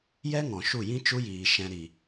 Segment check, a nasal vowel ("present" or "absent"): present